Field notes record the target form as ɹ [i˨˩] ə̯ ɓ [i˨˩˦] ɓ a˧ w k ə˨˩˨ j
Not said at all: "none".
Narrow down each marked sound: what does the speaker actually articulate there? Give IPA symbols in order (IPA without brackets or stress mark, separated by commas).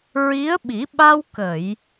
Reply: i˧˥, i˨˩˦